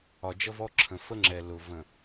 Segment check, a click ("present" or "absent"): present